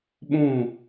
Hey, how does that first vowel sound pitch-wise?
falling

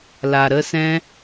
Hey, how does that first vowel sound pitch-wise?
low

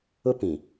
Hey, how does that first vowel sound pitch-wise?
high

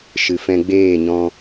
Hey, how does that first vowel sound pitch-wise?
low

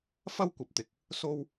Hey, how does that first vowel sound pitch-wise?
high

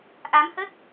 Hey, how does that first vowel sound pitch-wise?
rising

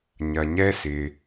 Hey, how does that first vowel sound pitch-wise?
low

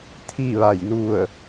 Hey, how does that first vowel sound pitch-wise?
falling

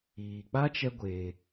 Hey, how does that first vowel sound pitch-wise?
low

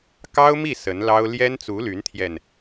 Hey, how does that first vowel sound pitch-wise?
high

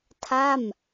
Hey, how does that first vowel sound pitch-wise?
falling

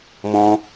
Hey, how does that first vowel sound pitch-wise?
high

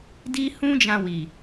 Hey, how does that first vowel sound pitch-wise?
high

